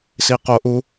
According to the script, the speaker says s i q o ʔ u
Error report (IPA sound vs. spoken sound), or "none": none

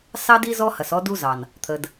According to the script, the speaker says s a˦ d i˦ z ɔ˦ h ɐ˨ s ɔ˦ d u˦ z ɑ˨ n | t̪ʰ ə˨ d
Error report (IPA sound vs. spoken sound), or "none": a˦ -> ɑ˦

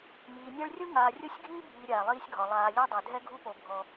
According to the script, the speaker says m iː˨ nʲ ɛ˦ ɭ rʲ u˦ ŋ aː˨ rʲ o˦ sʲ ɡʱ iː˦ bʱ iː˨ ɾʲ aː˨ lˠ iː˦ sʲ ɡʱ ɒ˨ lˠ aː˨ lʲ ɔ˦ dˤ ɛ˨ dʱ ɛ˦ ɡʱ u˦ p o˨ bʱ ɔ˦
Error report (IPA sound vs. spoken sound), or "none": none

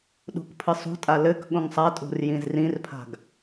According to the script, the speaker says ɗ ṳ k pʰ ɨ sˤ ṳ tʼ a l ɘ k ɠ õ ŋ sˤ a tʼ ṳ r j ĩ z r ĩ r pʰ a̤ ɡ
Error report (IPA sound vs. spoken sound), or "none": none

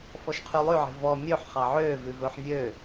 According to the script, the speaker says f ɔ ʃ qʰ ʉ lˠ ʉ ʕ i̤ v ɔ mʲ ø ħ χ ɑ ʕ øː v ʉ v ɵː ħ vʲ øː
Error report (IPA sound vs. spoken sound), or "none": none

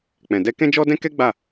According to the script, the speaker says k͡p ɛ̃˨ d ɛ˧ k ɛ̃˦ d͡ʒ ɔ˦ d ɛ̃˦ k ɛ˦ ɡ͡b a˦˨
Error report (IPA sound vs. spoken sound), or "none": none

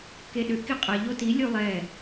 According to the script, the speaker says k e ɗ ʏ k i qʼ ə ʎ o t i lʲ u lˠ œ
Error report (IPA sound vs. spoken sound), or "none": œ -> ɛ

